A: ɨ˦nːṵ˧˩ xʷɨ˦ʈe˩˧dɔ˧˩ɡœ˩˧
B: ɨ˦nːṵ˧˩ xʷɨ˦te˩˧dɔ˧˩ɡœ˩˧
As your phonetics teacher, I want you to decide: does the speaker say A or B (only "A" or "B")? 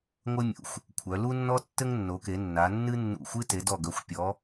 B